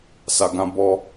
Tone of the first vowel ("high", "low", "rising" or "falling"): low